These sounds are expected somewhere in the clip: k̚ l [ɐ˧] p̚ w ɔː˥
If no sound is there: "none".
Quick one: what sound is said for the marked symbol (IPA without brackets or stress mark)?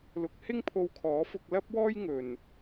ɐ˥